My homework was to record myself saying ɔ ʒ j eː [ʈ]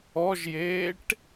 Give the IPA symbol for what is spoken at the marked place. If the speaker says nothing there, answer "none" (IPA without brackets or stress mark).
ʈ